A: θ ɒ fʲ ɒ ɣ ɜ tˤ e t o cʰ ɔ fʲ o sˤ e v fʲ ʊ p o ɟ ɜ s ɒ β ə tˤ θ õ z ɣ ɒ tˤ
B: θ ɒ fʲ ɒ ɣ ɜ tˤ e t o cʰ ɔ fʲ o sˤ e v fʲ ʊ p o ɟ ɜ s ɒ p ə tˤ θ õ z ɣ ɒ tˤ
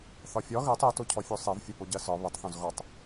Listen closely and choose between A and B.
A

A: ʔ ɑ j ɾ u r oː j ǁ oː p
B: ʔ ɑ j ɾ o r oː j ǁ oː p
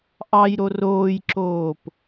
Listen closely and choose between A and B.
B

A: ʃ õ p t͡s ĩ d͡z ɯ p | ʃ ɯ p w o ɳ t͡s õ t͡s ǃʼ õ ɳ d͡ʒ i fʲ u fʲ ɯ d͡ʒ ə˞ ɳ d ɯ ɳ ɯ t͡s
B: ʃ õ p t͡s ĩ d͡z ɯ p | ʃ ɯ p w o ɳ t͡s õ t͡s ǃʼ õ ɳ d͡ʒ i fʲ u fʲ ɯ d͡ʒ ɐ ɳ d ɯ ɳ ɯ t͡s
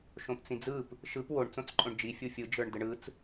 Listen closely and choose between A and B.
A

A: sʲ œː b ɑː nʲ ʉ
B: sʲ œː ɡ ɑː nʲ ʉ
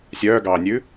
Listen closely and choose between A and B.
B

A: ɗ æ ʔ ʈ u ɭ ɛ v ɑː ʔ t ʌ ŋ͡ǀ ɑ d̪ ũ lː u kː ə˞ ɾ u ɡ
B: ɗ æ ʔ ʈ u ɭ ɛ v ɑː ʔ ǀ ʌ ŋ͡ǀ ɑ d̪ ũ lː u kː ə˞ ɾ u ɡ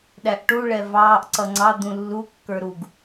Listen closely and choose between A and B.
B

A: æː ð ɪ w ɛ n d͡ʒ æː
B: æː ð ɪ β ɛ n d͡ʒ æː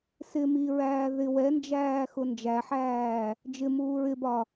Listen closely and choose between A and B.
A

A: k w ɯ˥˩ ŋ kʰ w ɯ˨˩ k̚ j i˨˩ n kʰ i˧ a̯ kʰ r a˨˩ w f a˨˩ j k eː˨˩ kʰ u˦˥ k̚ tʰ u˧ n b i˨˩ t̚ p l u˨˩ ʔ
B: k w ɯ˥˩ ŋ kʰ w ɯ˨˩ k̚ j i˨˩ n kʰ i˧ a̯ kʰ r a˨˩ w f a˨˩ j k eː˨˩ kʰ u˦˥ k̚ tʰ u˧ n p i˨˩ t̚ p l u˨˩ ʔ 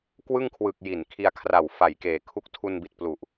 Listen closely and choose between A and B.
A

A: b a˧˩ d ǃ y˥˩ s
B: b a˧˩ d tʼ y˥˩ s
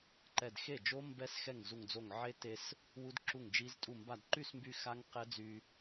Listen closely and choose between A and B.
A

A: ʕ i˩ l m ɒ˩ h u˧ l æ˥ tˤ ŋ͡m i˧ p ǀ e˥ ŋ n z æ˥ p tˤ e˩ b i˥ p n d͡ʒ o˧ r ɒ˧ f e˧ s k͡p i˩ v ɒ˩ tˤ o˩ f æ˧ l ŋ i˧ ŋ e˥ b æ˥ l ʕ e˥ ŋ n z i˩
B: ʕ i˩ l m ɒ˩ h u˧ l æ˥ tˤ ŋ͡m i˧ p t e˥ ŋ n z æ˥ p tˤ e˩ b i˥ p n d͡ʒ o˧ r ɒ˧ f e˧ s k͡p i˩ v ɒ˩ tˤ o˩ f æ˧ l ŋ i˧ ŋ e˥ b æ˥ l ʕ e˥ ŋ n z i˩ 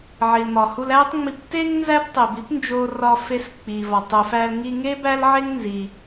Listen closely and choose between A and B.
B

